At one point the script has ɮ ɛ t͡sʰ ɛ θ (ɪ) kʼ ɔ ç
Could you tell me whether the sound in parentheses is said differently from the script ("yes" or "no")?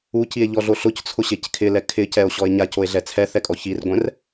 yes